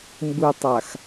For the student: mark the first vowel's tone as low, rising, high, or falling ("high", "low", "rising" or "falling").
low